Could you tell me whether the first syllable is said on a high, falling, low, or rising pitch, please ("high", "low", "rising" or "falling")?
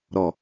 low